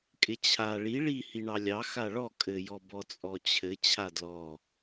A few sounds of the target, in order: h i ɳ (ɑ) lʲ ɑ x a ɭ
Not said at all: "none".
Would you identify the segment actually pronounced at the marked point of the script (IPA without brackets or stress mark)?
ɑ